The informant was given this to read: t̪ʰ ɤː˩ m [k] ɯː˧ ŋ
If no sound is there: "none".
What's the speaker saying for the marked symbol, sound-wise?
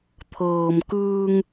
k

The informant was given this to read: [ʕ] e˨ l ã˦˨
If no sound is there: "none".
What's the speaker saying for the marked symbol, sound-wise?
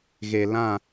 ɣ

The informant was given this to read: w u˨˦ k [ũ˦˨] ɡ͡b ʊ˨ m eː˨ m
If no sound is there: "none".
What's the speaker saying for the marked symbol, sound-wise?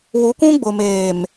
ũ˦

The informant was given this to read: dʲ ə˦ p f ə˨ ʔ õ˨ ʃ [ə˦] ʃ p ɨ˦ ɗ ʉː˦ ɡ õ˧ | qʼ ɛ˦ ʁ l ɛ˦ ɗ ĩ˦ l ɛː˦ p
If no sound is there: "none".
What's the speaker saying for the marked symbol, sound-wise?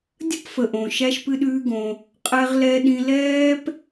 æ˦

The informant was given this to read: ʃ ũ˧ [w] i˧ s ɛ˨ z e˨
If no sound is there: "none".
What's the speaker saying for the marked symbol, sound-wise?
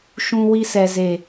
w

